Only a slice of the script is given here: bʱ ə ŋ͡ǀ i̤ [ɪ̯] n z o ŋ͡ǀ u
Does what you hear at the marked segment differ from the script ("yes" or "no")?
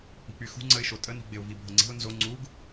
yes